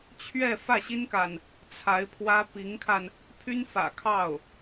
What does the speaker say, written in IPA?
t͡ɕʰ ɥ ɛ˥˧ f ä˥˩ ɕ i˥ n k a˨ n | t͡sʰ a˧˥ ɪ̯ pʰ w ä˥ p i˧˥ ŋ kʰ a˧ n | pʰ y˥ n f ä̰˨˩ kʰ ɑ˥˩ ʊ̯

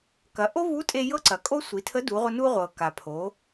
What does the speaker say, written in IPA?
k ɐ˩˧ ʔ o˥ v u˧˥ tʼ e˧ j ɤ˥ ǀ ɐ˩˧ kʼ o˥ sʷ i˩˧ tʰ ə˧˥ d u˩˧ ʁʷ ə˧ n u˧ ʁʷ ɤ˩ k a˩ pʰ o˩˧

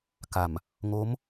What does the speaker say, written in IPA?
k a˨˩ m | ŋ o˦˥ m

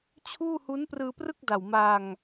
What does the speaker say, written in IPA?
t͡ɕʰ uː˥˩ h u˦˥ n p r ɯː˧ p r ɯ˥˩ k̚ d a˨˩ w m a˧ ŋ

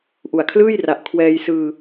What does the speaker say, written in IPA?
ʔ u˨˩ a̯ kʰ l ɯː˥˩ j r a˨˩ ʔ kʰ w ɛː˧ j s ɯː˧

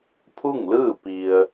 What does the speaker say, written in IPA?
pʰ u˥˨ ŋ l ɯː˥˨ p i˧ ə̯

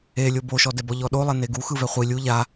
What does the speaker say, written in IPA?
e lʲ o b o ʃ ɔ d ɛ b ɔ ʎ ɔ ɗ o lˠ ɛ n e ɡ u x ɯ v ɛ χʷ i lʲ u ʎ a

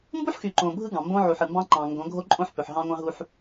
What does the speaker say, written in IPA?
m b u˦ ħ x y˨ ǃ õ˨ bʱ ɯ˦ ɡ ɑ̃˨ m b õ˦ ʕ u˨ ħ ɯ˨ m b ɑ̃˦ ǃ ɑ̃˨ ŋ ɡ õ˨˦ ɡʱ o˦ ǃʼ õ˦ ħ p ø˨ ħ ɦ ɑ̃˦ ŋʷ ɑ̃˦ ɦ u˦ ħ

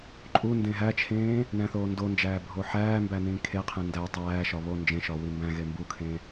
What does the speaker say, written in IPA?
ǃʼ u n d ẽ ɦ æ t͡ʃʰ ẽː | n æ̃ θ oː n d o n d͡ʒ æː bʱ o ħ æː m b æ n ĩː kʰ e qʰ ẽ n d æ tˤ æː ʃ ɒ β o n d͡ʒ ẽ ʃ ɒ w i m b æ̃ ɣ e m b u kʰ ẽ

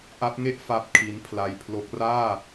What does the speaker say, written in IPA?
ʔ a˦˥ p̚ ŋ e˥˩ ʔ f a˥˩ p̚ kʰ i˦˥ n pʰ l a˧ j pʰ l o˦˥ k̚ r aː˥˩

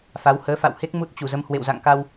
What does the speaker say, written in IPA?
f a˨˦ w h əː˨˦ f a̰˧˨ w h e˦˥ k̚ m u˦˥ t̚ t͡ɕ u˧˩ z ə˨˦ m h w ḛ˧˨ w z a̰˧˨ ŋ k a˧ w

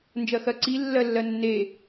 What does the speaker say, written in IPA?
n d͡ʒ ɜ x ɜ ǀ i lː ɜ lː ɜ nː e

